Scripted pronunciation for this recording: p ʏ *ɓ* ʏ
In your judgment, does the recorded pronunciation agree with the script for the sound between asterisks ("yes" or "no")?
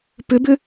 no